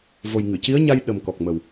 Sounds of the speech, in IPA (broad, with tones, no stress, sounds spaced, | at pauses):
v o˨˩ j ŋ ɨ˨˩˨ c i˧˥ ə̯ ɲ a˧ j ɗ ə˨˩ m k ɔ˨˩ k̚ m ə˨˩ w